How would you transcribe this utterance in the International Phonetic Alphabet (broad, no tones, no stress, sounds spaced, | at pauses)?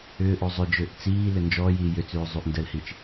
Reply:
ʏː ʔ o zˤ ʏ d͡ʒ ʏː ʔ t͡s iː l ʏ n d͡ʒ ɔː j iː j ʏ t͡s ʉː zˤ y ʔ n d ə l h i t͡ʃ